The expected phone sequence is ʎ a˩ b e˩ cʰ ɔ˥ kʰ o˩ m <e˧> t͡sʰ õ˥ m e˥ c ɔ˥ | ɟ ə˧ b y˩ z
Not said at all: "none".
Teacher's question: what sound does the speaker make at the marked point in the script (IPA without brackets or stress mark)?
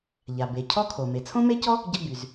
e˩